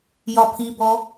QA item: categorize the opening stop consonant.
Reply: aspirated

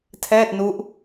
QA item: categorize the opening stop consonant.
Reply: aspirated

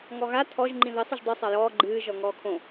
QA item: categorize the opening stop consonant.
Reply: aspirated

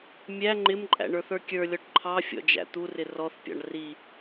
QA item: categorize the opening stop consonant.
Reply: click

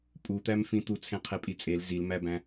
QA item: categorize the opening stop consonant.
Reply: ejective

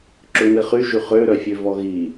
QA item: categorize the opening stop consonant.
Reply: click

